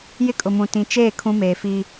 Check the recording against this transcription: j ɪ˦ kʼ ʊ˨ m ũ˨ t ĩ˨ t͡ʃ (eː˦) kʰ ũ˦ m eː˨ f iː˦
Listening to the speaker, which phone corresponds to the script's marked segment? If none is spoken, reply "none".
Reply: eː˦˨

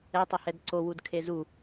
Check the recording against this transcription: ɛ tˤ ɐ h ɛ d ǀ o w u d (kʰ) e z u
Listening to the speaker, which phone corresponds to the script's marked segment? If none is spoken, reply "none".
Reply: kʰ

